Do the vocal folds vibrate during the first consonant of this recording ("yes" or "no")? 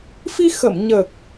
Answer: no